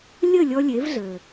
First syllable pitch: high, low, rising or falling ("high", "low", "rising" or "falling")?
falling